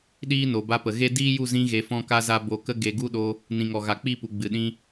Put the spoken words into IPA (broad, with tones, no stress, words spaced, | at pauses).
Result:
ɗiː˦no˨ ba˧pə˨ ɣe˦ diː˦ju˦˨zĩ˧ ɣe˧fɔ̃˦ka˦za˦ bo˧kə˦ ɡe˧ ɡu˦ɗo˧ | nĩ˨ŋɔ˨ ɣa˨k͡pi˦˨pu˨ ɡ͡bɨ˨ɗĩ˧